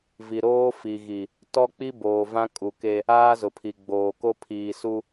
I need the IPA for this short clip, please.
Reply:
vi˨ɾoː˦ fi˨ɣi˨ | tɔ˦k͡pi˦ boː˨vã˦ kʼu˨ke˦ | aː˦zʊ˨pʰi˨ ɡ͡boː˨ko˦ pʰiː˨ su˦

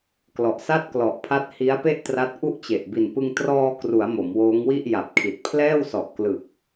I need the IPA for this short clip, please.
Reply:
klɔ˨˩ʔsa˥˩t̚klɔ˨˩ʔ pʰa˦˥t̚hi˦˥a̯pe˥˩ʔ tra˦˥t̚ʔu˥˩ʔt͡ɕe˨˩ʔ bi˨˩npɯ˧ŋ trɔː˧kru˩˦a̯ mo˩˦mwoː˦˥ŋ wi˥˩ʔ ja˨˩p̚kʰi˨˩t̚ pʰlɛː˥˩wsɔ˨˩ʔklɯ˨˩k̚

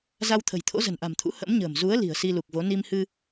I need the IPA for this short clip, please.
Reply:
za˧wt̪ʰə̤˨˩jt̪ʰo̰˧˥ zə̤˨˩nʔa̤˨˩mt̪ʰṵ˧˥ hə̰˧˥mɲə̤ː˨˩m zu˨˦ə̯ li̤˨˩ə̯si˧lu˨˩k̚vo˨˦ ni˧mhɨ˧

